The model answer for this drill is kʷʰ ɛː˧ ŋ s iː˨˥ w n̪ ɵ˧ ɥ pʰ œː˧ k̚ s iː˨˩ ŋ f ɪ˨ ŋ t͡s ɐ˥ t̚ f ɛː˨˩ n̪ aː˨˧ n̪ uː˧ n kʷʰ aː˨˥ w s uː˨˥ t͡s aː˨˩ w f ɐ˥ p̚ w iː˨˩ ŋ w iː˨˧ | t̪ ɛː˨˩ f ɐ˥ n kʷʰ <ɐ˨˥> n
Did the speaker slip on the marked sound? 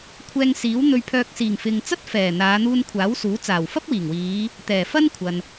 yes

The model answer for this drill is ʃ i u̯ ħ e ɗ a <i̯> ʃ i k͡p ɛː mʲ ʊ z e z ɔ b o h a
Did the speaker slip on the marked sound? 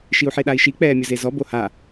no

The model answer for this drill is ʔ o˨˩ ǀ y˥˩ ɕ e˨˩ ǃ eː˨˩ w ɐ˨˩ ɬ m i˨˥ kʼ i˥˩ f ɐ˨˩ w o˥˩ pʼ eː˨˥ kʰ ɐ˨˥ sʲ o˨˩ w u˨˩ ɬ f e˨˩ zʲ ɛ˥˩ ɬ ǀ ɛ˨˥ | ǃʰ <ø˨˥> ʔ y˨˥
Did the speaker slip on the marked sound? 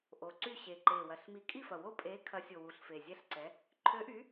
no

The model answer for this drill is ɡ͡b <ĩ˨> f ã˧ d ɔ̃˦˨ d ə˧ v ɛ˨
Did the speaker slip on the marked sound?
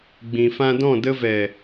no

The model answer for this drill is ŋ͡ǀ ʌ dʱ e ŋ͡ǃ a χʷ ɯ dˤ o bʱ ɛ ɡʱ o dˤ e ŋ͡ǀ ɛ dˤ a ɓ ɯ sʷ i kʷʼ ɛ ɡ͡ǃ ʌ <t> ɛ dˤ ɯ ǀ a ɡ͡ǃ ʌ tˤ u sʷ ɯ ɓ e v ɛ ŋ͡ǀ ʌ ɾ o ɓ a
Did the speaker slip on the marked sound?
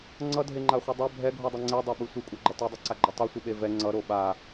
no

